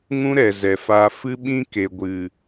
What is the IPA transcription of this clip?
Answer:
ŋ ũ˦ ɾ ɛ˨ z ɛ˨ f aː˧ f ɨ˦ ɓ ĩ˦ k e˨ ɡʷ ɨ˨

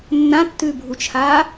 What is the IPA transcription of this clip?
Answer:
nː ã tː ʉː bʱ u t͡ʃʰ aː

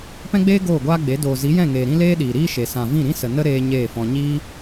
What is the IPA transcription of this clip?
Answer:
p ɛ̃˦ ɡ͡b eː˦ ɡ oː˦˨ ɡʷ aː˦ ɡ͡b e˨˦ d oː˨ z i˨˦ j ɛ̃˦˨ ŋ eː˨ ɾ ĩ˦ l eː˦ ɗ iː˨ ɾ iː˦ ʃ e˨ s ã˨ v ĩ˦˨ ɾ ĩ˦ s ə˨ n ə˦ ɾ eː˦ ɲ eː˦˨ f ɔ̃˧ ɲ iː˦

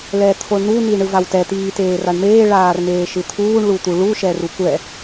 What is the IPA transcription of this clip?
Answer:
l ɛ t̪ʰ o ɳ n u n i ɳ ɯ v a w t ɛ t̪ iː t eː r a ɳ m eː ɭ aː r m eː ʃ ɯ t̪ʰ uː ɳ ɭ u t̪ u ɭ u ʃ ɛ r u kʷ ɛ

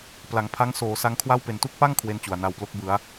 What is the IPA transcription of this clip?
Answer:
p l a˩˦ ŋ pʰ a˦˥ ŋ s oː˩˦ s a˧ ŋ kʰ w a˥˩ w p e˨˩ n t u˥˩ k̚ p a˥˩ ŋ kʰ w e˥˩ n t͡ɕ u˨˩ a̯ n a˧ w p l o˦˥ k̚ b ɯ˩˦ a̯

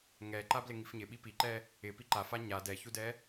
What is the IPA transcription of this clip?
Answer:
ŋ ɛ ǃ a b l ɪ ŋ i f ɲ ɪ ɓ i p i ǃ ɛ | ɪ p i ǃ a f a ɲ a d ɛ ç u d ɛ

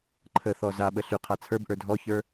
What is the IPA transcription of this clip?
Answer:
ǃʰ ə θ ɔ z a ɓ ə ɬ y qʰ a t͡sʰ ə˞ b ʔ ə˞ dʱ ɔ ç ə˞

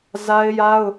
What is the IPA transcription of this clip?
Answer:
z a˦ ɪ̯ j a˦ ʊ̯

